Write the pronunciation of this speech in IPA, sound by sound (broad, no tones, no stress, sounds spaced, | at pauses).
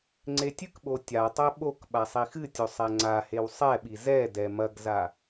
ŋ͡ǀ e tʲ ɨ k ɓ o tʲ a tˤ ɛ ɓ o k ɓ a sˤ i x ɨ tʲ o sˤ ɛ ŋ͡ǀ a h e w sˤ ɛ ɓ i z ɛ d ɛ m ɐ ɡ z a